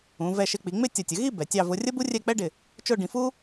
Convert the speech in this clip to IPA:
ũ˩˧ vɛ˧˩ʃɪ˧k͡pi˩˧ŋ͡mɪ˥˧ tʲʌ˧˩tʲə˩˧ ɣi˥˧ bɛ˩˧tʲɑ˥˧ vʊ˧rʲə˥bu˥ rʲɛ˥˧k͡pɛ˥ɖɪ˧˩ | t͡ʃʊ˥˧ɖĩ˧fu˥

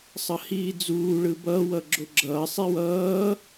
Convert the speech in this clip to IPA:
sˤʌhiːd͡zuː ɭɯbʌː wʌɡ͡ǁoɡ͡ǁʌː sˤiwʌː

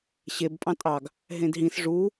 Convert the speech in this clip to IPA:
ɕeb pʼɑ̃tʼɑɡ | ɦẽdɦĩs ʐu

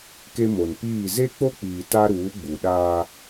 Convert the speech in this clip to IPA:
ke˦mo˨n piː˦˨ ze˦k͡po˦k͡piː˨ ta˦ɾuː˨˦ɡ͡bu˨ɗaː˦

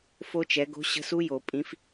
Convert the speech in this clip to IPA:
fo˦˥t͡ʃɛ˨˦ ɡo̤˦˥ɕə̤˦˥ su˦˥jo˨˩˦pʼĩ˨˦f

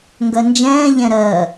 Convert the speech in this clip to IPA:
ŋɡɜnd͡ʒɛ̃ː ʎɛ̃ɾɜ

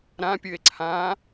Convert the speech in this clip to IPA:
ɾãpʲɨe̯ ǀʰã

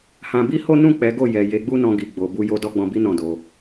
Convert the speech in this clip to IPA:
hã˧bi˦ho˦ nũ˦˨k͡pɛ˨˦ ɡo˦˨ jɛ˨ je˨˦ɡ͡bu˦nɔ̃˧ ɡi˨ɡ͡bo˨ bu˧ jo˧ dɔ˦ɡ͡bɔ̃˧bi˦ nɔ̃˦˨do˨˦

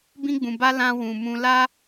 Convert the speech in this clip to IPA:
bĩ˧ɡ͡bũ˨ba˧ lã˧ wũ˨mũ˧ la˦

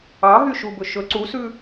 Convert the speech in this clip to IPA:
ɑɦyʃubɵ ʃɵ ǀusʉ

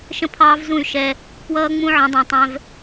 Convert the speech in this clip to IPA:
ʃə̃˦pʰɑː˦vzũ˦˨y̯ ʃɛ˦ | pwʌː˦ŋ͡mũ˦ ʕə̃˨˦dˤũ˨tˤɛ̃˦v

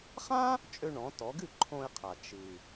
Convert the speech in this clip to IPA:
χã˥ | t͡ʃʼø˧ɳɔ̃˩˧tɔ˩˧ɡɨ˥˩ ǃʰõ˧ɪ̯qʰa˩ t͡ʃɨ˩

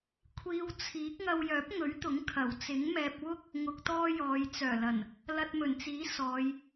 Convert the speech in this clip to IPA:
kʷʰiː˧wt͡sʰiː˨˥k̚ ŋɐ˧wjœː˨˥p̚ŋɵ˨˥ɥt̪ʊ˨˥ŋ kʰɐ˨˩wt͡sɪ˨˥ŋmɛː˧p̚ wʊ˥k̚ | ŋʊ˧k̚t̪ɔː˥jɔː˨˧j t͡sœː˨˩lɐ˨˩n | lɐ˧t̚mɵ˨˩nt͡siː˨˥ sɔː˨˧j

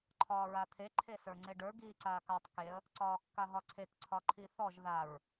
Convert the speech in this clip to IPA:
ǃʰɒːɹat̪ʰe ǃʰesə˞ŋ͡ǀeɖə˞ ɡiːǀaːkatˤ keə̯ | ǀɒːkːaɦɒǀʰek ǀʰɒǃʰiθɔʒ ðaɹ

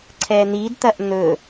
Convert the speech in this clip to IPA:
ǀʰɛn̪idt̪ɐʔ n̪ɵ

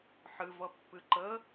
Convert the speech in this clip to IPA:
ħɨvʌpːɨ ǃə

